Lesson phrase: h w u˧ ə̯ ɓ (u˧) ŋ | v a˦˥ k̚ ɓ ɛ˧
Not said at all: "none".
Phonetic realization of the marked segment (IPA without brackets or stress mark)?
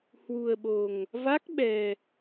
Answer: o˧